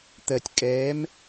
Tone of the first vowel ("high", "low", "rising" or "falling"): low